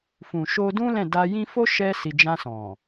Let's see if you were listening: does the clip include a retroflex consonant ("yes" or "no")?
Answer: no